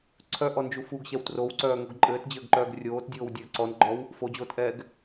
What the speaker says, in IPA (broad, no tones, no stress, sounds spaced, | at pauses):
ǀʰ œ ʔ ɔ n d͡ʒ u f u ɡ ɕ ɛ w t r o w ǀ œː ŋ o ɡ ǃʼ ɘː t d͡ʑ ɘː ɡ ǃ œː ɡ rʲ oː t dʲ oː w dʲ ɘː ǀ ɔ n ɡ͡ǃ ɔ w | f o d͡ʑ oː t ʔ ɛː ɡ